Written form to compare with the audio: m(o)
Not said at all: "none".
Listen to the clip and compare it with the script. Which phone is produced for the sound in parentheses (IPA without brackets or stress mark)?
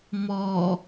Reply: ɔ